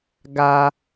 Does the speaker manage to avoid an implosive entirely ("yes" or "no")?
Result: yes